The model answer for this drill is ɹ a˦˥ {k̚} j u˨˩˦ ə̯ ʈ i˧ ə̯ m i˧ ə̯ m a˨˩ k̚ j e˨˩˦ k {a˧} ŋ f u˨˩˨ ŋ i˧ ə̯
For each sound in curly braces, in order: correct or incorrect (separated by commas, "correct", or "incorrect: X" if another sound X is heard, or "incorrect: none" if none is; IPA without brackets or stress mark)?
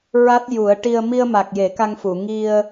incorrect: t̚, correct